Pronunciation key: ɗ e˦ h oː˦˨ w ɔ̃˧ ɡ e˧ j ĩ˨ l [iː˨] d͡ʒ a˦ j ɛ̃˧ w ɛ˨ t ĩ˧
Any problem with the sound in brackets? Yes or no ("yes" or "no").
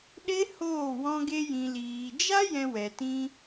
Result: no